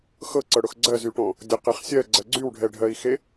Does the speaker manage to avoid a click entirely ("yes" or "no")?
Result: no